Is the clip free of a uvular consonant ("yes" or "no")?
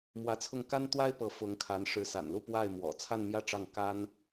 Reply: yes